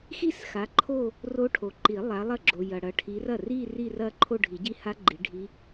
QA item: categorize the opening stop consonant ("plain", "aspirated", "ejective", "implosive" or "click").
click